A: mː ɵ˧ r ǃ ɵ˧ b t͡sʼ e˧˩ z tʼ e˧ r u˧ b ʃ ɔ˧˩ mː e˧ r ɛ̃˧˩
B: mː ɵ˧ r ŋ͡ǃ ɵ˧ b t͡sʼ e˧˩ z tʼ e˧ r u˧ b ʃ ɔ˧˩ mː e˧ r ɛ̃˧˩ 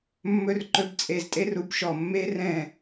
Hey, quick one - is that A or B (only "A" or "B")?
A